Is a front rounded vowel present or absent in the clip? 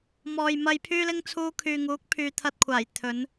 present